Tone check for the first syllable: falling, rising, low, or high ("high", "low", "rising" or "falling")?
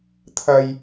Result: high